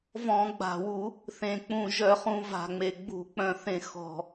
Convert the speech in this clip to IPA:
v ɔ̃˧˩˧ ɡ͡b a̤˨˩ w u˧˩˧ | θ ẽ˨˩ k͡p ũ˨˩ ʒ œ˧˩˧ χ ũ˧˩˧ v a̤˨˩ ŋ͡m e˨˩ ɡ͡b ṳ˧˩˧ k͡p œ̃˧˩˧ θ ẽ˧˩˧ x ɔ̤˨˩

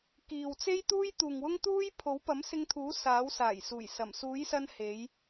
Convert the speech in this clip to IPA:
k iː˨ w t͡s e˥ j t̪ uː˥ j t̪ uː˨ ŋ w ʊ˥ ŋ t̪ uː˥ j pʰ o˨˥ w p ɐ˨˥ m s ɪ˧ ŋ t̪ʰ uː˨˥ s aː˨˥ w s aː˨˩ j s uː˨˩ j s ɐ˨˩ m s uː˨˥ j s ɐ˧ n h e˨˧ j

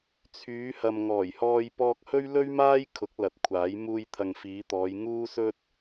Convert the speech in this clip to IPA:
t͡sʰ yː˨˧ h ɐ˨ m ŋ ɔː˨˩ j h ɔː˧ j p ɔː˧ k̚ h ɵ˥ ɥ l ɵ˥ ɥ m aː˥ j kʰ ʊ˨˥ k̚ l ɐ˨˥ t̚ kʷʰ aː˨˥ j m uː˧ j t̪ʰ ɐ˨ ŋ f iː˨˧ t̪ ɔː˨˧ j ŋ uː˥ s ɵ˥ t̚

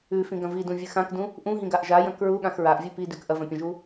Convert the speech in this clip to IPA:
ʉ f ĩ ɡ ɐ̃ v i d ũ vʲ ɨ x ã k d ũ | ʔ ũ ɦ ĩ ɡ a ʔ ʒ a j ɐ̃ k ɹ u ɠ ã x ɹ a ʔ vʲ ɨ p i d ʉ k ʔ ɐ v ɐ̃ pʲ ɐ̃ ʒ u

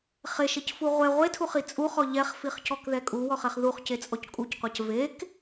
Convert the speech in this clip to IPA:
χ e ʃ e c f u ʁʷ ɛ ʁʷ e tʰ u χ i t͡sʼ u χ ɔ ʎ ɛ χ f i χ c ɔ k ð ɛ kʼ u w ɔ χ ɛ χ ð u χ c e t͡sʼ ɔ c kʼ u c qʷ a c v e k

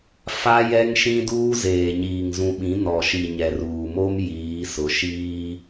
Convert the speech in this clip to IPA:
f a˦ j ɛ˦ ŋ ʃ ĩ˦ d uː˦ z eː˨ ɲ iː˨ ŋ z ũ˨ ɓ ĩ˨˦ n ɔ˨ ʃ i˨ ɲ ɛ˨ r uː˨ m o˦ m j iː˨˦ s ʊ˨˦ ʃ iː˦

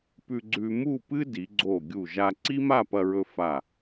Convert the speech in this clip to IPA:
p ʉ˧ ɡ͡ǀ ʉ˧ m u˥˧ p ɨ˥ d i˩˧ ɡ͡ǀ o˧˩ ɡʲ u˧˩ ʒ a˧ ǀ i˥ m a˥˧ p ɐ˧ ɹ ɵ˧ f a˧˩

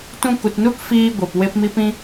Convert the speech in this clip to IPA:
t ũ˧ k u˨ t n u˦ k f iː˦ ɡʷ e˨ p w e˧ p m i˦ p ĩ˦

